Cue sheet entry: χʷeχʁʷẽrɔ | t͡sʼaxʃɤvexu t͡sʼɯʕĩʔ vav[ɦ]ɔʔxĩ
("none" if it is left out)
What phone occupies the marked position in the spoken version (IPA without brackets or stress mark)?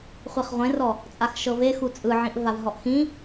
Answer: ɦ